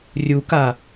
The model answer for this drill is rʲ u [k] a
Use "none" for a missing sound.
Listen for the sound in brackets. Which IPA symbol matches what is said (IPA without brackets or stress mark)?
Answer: k